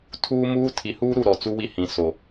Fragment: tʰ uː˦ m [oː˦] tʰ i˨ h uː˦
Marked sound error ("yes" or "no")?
yes